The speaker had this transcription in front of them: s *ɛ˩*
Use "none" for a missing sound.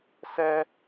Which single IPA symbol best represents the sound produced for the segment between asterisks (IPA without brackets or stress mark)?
ɛ˥